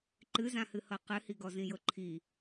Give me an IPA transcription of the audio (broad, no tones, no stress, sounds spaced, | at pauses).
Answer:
ǃ ɨ z ã h ɨ h ɤ q ɨ h i ɡ ɔ z ĩ j ɤ ǃʰ i